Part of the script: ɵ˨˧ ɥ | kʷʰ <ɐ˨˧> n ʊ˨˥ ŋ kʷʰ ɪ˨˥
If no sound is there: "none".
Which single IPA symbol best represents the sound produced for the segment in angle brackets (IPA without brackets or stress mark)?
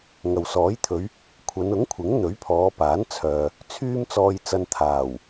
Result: ɐ˨˧